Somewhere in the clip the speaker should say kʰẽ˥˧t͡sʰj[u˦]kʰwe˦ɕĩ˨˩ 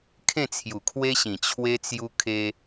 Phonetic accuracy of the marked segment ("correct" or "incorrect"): incorrect